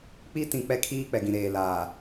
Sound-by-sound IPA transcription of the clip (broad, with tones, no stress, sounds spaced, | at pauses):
k͡p i˦ t ĩ˨ k͡p ɛ˦ kʰ iː˦ k͡p ɛ˨ ɡ ĩ˨ ɾ eː˨ l aː˨